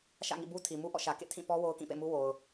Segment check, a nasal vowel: present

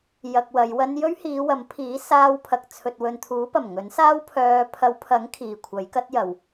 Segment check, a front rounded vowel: present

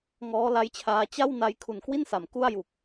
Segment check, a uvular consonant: absent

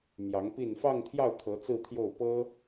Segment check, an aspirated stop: present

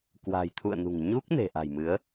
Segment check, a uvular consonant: absent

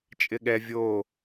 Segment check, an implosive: present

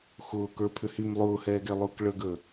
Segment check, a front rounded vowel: present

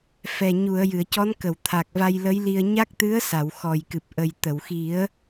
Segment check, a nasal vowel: absent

